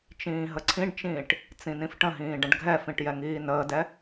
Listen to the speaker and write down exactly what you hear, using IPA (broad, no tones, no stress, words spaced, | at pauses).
t͡ʃĩːɦəǀʰĩɖt͡ʃĩːʈ | t͡sĩnĩfʈə̃ɦĩː ɖə̃ɖɡʱɛfĩʈ jɛŋiːnəːdɛ